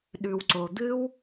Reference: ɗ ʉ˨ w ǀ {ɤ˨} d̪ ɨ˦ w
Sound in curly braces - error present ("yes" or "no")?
yes